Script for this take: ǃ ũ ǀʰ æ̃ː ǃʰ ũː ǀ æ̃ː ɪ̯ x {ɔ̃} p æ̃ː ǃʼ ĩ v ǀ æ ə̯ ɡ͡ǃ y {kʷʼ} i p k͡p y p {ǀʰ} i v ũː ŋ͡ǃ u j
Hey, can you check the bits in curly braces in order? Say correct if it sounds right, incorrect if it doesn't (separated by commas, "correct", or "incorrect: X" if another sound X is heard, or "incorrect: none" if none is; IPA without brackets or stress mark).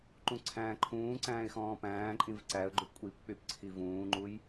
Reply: incorrect: ɔ̃ː, correct, correct